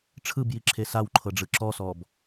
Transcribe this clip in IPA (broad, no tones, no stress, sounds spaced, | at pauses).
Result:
ʈ͡ʂʰ ɯ b j i ǁʰ e s a w ǃʰ ɤ ɖ͡ʐ ɯ ǁ ɔ s ɔ b